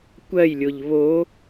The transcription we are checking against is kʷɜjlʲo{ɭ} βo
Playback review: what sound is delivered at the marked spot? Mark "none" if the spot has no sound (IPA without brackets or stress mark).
ʎ